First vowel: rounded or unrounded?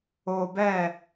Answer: rounded